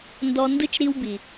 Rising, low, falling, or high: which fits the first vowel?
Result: high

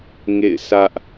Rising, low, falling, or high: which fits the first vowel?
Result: falling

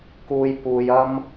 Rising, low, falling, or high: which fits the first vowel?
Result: low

